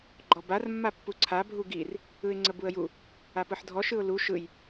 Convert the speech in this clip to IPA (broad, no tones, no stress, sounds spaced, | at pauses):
ɡ͡ǃ ɔ b a r mː a pː u ǀʰ a bʱ u ɡ i r | ɯ ɪ̯ ŋ͡ǀ ə b u ə̯ j u | a p ɯ ħ dʱ ɔ ʃ ɯ ʊ̯ l u ʃ ɯ j